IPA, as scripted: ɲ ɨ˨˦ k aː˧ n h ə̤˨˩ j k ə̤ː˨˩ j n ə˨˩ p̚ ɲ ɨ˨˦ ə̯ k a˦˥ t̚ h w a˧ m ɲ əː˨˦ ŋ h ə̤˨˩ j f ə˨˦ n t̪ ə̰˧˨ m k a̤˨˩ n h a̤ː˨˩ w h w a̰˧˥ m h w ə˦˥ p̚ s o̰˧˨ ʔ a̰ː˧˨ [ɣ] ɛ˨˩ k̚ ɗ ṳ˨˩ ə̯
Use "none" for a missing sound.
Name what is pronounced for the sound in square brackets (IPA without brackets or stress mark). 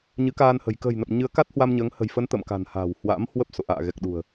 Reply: ɣ